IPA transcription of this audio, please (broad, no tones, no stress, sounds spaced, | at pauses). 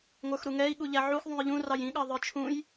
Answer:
ŋʷ ə˞ x ɾ u ŋ ɛ i̯ ɠ u ʎ æ ʕ u x ðˤ ũ j ʎ ũ r ɑ j ĩ ɠ ɑ ðˤ ə˞ t͡ʃʰ ũ j